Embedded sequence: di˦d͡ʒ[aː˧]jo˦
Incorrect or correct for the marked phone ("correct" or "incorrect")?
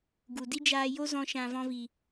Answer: correct